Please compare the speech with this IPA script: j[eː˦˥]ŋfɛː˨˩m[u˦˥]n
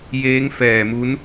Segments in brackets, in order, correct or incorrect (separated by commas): correct, correct